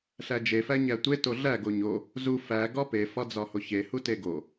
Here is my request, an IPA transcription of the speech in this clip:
ɬ æ d͡ʒ e f æ ɲ æ tʷ e t o ɮ æ ɡ o ɲ o | z u f æ ɡ ɒ p e f ɒ d͡z ɒ h o ç e h u t e ɡ o

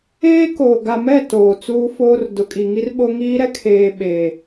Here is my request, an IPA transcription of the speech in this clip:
eː˦ k oː˨ ɡ a˨ m ɛ˦˨ t oː˨ t͡s uː˦ f oː˦ r d ʊ˨ kʼ i˨ ŋ i˦ r ɓ o˦ ŋ iː˦ ɾ ɛ˦ kʰ eː˨ ɓ e˨

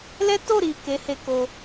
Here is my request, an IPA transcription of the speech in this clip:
l ɛ˦ t o˦˨ ɾ i˨ k e˨˦ h e˧ k o˧

